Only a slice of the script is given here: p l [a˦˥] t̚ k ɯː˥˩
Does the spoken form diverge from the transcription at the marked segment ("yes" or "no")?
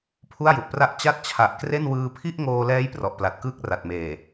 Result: yes